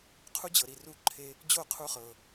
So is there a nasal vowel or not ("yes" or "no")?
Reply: no